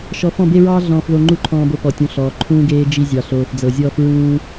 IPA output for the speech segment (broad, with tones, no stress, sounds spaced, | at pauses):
ʃ ɔ˧ f ɔ̃˦˨ b e˦ ɹ ɑː˦ ɮ ɔ̃ː˦ f ð o˦ ŋ͡ǃ u˦ ǃʰ ɔ̃ː˧ b o˧ p ɔ˨ tʲ ũ˨ ɬ ɔː˨ ǃʰ ũː˦ ɡ eː˦ d͡ʒ i˧ zʲ ɑ˨ ɬ oː˨ f d͡z ɤ˨ zʲ ɔː˦ f ɹ ũː˦